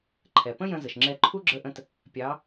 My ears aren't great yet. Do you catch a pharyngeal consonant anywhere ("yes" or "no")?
no